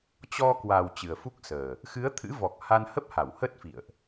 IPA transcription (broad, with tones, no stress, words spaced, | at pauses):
t͡ɕɔ˧kwa˨˩w t͡ɕɨ˨˩ə̯fu˦˥k̚səː˨˩ | xɨ˨˦ə̯t̪ʰɨ̰˧˥vɔ˨˩k̚ ha˧nhə˦˥p̚ha˧˩w hə˦˥t̚fḭ˧˨ə̯ʔ